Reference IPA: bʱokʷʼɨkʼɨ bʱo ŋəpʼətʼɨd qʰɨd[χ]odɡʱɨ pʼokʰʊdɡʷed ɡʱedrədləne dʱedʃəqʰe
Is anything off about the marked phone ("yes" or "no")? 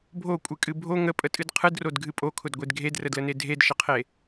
yes